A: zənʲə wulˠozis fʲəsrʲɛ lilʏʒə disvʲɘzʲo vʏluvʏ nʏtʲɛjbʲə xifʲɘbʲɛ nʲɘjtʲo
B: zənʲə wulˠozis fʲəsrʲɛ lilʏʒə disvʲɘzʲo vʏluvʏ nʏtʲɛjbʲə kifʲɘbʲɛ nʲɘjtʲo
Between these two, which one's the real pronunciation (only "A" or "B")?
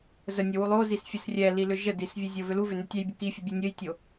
B